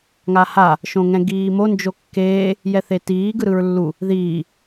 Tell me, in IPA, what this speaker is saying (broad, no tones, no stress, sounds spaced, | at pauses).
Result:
ŋ a h a | ʃ õ ŋ ɛ̃ ɡ iː m o n d͡ʒ o kː eː | j ɛ θ e t iː ɡ ɯ ɾ ɯ ɹ lː u | ð iː